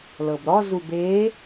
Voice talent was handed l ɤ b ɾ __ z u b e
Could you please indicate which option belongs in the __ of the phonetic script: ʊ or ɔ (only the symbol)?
ɔ